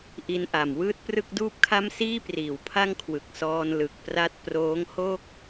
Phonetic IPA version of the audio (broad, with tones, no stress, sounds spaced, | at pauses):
ʔ i˧ n ʔ a˨˩ m w ɯː˥˩ t̚ p r ɯ˥˩ k̚ d uː˥˩ p̚ kʰ a˥˩ m s iː˥˩ p r iː˩˦ w pʰ a˥˩ ŋ kʰ w ɯ˨˩ k̚ s ɔː˧ n l ɯ˨˩ k̚ p r a˥˩ t̚ p r oː˦˥ ŋ h o˥˩ k̚